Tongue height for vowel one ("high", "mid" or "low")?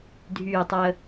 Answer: high